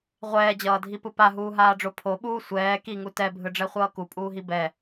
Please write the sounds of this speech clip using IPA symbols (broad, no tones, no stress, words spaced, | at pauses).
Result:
ʁʷɛːd͡ʑʌːdʱipɯ paɦuːɦaːɖ͡ʐo pʰoɓuː sʷɛː kiŋu tɛbʱɯɖ͡ʐɛχʷʌː kupʼuːɦi bɛ